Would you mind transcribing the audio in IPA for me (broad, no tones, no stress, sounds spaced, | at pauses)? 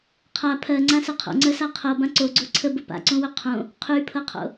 qʰ a pʰ ɜ ŋ͡ǀ ã s ə qʰ o̰ ŋ͡ǀ ɜ s a qʰ ɤ b ã ǀ o ɡ͡ǀ o ǀʰ ə b ə p a̰ ǀ õ w ɵ qʰ õ | qʰ y pʰ ɤ qʰ o̰